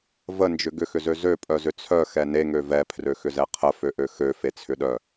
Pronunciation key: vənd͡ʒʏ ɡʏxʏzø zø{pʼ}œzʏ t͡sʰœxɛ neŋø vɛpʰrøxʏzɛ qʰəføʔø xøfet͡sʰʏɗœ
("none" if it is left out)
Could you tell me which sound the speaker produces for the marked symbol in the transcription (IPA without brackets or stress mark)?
pʼ